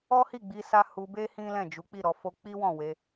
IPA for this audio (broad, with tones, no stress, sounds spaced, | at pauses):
ɔ˦ h i˦˨ ɡ͡b i˧ s a˧ h u˧ b e˦ h ĩ˦ l ɛ̃˦˨ d͡ʒ u˨˦ k͡p i˦˨ ɾ ɔ˧ f o˦ k͡p i˦ w ɔ̃˦˨ w e˧